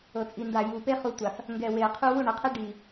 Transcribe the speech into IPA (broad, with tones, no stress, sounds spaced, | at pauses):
ɤ˨ t͡sʼ i˨ n d a˨ j u˨ p e˦ χ u˨ tʷ a˨ f | ŋ ɡ ɛ˨ w e˨ ə̯ qʰ u˦ w u˦˨ ɳ ɤ˨ qʰ ɛ˦ ɖ i˨